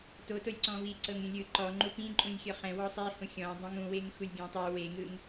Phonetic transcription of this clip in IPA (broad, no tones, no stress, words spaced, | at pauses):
totolʲ ǀɔ̃vi ǀɤŋɾʲũlʲɯ ǃɔŋ͡ǃu pĩǃʼũlʲxʲɔ χɛ̃ wɔsˤi hũxʲɔ̃ dˤɛ̃ŋũweŋ xulʲɡʲɛ̃tˤu weŋɯŋ